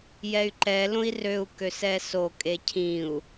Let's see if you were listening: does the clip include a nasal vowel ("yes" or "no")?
yes